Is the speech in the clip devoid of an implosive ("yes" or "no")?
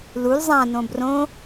yes